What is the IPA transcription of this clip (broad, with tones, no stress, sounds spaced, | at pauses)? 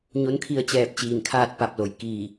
ɲ o˧˥ n kʰ i˧ ə̯ t͡ɕ ɛː˧˩ p̚ t͡ɕ iː˧˩ n kʰ aː˥˨ t̚ p a˧˩ p̚ l o˩˧ j k iː˧˩